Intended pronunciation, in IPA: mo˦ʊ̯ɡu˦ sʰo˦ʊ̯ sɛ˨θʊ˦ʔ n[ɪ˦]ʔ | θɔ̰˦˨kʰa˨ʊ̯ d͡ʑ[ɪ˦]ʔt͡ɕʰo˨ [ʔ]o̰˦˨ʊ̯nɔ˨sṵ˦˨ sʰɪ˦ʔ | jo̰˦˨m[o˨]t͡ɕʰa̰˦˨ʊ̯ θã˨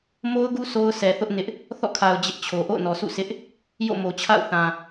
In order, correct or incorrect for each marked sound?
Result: correct, correct, correct, correct

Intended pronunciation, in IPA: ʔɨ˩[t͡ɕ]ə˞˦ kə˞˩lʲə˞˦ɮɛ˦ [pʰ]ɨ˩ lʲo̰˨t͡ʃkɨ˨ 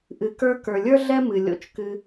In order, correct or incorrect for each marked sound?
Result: incorrect: k, incorrect: m

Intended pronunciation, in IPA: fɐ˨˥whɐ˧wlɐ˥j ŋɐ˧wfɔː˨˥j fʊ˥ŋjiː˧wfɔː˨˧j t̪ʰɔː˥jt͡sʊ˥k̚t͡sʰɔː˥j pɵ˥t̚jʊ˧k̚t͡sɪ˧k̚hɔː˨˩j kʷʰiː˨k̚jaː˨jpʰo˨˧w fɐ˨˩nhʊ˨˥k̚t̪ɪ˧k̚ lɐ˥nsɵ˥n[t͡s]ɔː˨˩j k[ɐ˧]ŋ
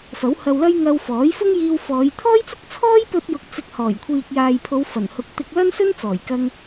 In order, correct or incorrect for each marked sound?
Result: correct, correct

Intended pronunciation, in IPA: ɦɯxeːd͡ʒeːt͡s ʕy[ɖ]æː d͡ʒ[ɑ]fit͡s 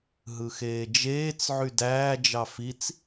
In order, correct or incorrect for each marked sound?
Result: incorrect: d, correct

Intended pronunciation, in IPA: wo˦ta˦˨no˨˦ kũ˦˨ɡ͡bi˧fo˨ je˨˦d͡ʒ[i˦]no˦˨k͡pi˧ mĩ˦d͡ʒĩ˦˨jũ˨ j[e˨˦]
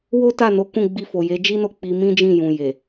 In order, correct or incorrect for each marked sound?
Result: correct, incorrect: e˨

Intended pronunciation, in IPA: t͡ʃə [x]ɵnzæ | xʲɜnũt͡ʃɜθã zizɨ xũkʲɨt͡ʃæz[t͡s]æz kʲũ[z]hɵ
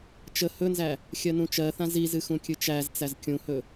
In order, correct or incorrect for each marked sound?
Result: incorrect: h, correct, incorrect: none

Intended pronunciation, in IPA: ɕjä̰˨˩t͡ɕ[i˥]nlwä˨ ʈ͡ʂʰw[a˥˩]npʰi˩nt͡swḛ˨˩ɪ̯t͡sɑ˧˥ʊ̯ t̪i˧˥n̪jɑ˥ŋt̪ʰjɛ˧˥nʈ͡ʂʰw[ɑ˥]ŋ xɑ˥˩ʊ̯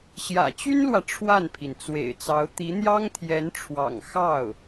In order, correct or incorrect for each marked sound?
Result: incorrect: y˥, correct, incorrect: ɑ̰˨˩

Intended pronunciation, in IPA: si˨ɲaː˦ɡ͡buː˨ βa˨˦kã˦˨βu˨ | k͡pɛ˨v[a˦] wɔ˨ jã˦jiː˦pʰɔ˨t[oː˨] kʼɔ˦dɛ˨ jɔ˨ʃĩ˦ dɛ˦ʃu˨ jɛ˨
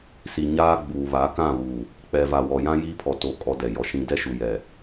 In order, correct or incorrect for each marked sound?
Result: incorrect: a˨, correct

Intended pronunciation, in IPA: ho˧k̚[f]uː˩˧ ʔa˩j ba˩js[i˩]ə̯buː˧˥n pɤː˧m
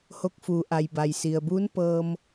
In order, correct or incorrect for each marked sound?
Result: correct, correct

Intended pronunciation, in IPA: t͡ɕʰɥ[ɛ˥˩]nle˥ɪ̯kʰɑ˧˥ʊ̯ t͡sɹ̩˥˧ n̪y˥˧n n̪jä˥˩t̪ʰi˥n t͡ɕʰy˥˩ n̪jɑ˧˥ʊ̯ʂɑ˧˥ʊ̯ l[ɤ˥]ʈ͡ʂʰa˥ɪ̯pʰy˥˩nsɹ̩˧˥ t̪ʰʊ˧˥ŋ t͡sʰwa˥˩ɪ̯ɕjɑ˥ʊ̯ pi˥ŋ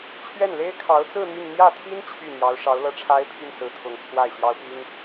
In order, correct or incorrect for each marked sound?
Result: correct, correct

